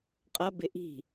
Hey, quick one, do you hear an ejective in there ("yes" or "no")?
yes